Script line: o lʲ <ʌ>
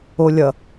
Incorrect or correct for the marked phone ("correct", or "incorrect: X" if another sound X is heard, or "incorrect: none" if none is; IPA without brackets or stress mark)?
correct